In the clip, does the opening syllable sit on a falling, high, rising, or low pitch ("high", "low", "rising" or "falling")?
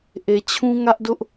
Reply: low